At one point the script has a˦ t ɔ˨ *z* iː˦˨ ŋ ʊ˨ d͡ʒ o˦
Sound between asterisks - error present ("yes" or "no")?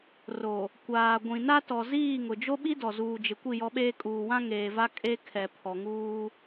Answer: no